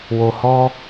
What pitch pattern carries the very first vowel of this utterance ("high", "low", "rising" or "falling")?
low